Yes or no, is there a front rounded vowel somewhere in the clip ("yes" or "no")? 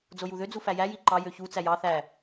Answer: yes